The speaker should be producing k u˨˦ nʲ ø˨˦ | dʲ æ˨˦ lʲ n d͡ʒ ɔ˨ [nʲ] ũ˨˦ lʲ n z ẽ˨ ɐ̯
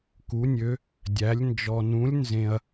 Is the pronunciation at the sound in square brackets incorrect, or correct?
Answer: incorrect